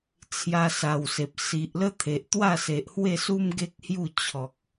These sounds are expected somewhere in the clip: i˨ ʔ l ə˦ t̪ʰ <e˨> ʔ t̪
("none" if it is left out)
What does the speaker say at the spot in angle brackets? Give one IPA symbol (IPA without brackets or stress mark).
e˨